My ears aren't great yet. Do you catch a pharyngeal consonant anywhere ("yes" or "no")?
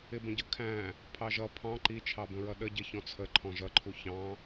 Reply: no